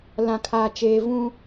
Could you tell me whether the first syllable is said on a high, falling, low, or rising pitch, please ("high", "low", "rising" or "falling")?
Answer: low